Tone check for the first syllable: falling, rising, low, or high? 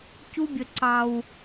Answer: high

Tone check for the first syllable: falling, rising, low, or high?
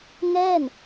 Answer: falling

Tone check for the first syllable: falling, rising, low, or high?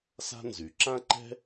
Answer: high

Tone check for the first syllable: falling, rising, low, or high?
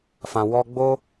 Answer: low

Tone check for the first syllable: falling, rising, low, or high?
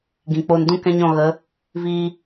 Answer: low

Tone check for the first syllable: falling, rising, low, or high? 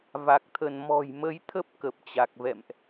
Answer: low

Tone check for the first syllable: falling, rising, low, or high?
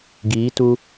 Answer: rising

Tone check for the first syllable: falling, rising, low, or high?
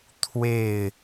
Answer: falling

